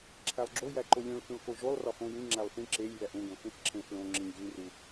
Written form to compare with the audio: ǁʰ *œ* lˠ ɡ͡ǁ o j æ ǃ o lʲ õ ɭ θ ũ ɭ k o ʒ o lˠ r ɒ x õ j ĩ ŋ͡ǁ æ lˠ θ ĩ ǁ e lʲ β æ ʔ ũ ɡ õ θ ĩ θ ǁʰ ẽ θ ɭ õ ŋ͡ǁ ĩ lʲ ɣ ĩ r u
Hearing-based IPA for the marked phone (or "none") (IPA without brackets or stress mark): æ